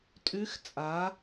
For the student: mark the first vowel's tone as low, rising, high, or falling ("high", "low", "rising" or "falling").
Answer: rising